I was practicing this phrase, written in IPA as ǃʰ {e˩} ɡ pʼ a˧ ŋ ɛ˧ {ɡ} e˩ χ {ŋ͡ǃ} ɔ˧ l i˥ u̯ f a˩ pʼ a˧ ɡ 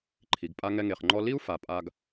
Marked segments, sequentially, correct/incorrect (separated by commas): incorrect, incorrect, correct